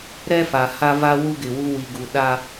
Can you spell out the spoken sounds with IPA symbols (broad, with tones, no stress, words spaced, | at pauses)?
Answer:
ɾɛ˦fa˨ ha˦va˦ wu˦ɡɪ˨wu˦ wi˨ɡu˨ ɗa˦